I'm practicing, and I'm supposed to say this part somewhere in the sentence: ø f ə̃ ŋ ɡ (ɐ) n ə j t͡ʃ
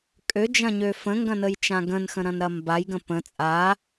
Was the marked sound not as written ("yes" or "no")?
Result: yes